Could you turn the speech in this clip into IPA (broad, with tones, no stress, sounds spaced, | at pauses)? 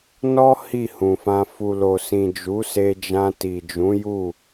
n ɔ˦ h i˦˨ h ũ˨ f ã˧ f u˨ l o˨ s ĩ˨ d͡ʒ u˨˦ s e˧ d͡ʒ ã˧ t i˨ d͡ʒ ũ˨˦ j u˦˨